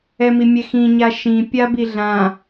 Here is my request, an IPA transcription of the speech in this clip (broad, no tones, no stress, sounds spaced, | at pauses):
ɛ m i mʲ ɛ x ĩ ɲ a ʃ ĩ pʲ a b i ɮ ã